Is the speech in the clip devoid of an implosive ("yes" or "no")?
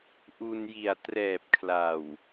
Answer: yes